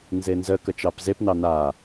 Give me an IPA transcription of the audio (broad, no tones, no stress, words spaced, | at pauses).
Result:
nzenzə kət͡ʃɑpzepnɑ na